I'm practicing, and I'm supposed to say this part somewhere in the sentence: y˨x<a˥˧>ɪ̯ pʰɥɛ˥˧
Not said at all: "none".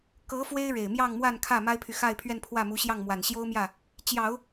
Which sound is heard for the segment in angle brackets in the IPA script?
a˥˧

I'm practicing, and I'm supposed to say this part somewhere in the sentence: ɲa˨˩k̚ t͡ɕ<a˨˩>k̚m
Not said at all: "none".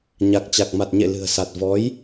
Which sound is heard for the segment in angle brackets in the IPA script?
a˨˩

